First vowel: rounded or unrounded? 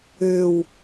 rounded